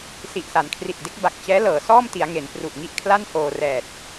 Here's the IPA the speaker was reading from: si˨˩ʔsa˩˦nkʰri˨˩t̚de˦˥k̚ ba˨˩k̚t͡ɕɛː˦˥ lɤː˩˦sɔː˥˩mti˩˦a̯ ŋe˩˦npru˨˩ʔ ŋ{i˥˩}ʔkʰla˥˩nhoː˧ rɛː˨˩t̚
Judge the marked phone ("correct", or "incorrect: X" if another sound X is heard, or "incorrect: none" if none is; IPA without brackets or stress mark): correct